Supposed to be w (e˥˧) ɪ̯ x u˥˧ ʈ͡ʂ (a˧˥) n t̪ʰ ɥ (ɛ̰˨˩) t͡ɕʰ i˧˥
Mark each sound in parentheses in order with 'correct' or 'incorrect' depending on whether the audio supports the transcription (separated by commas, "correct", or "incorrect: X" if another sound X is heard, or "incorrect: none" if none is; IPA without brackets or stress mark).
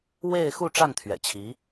correct, incorrect: a˥˩, correct